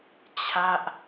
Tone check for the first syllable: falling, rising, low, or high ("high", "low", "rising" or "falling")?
falling